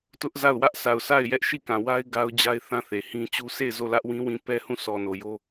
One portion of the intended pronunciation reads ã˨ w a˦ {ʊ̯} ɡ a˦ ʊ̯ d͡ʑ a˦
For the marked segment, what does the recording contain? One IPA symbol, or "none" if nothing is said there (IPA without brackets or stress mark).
ɪ̯